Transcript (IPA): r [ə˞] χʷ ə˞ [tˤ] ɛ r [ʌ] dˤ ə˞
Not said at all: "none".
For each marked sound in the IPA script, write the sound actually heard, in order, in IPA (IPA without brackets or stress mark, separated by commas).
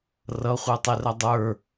ʌ, tˤ, ʌ